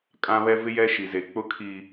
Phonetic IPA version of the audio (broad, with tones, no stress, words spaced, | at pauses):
kʼã˦βɛ˦ vɪ˦jɛ˦ ʃi˦ze˦ k͡pʊ˦kʰiː˦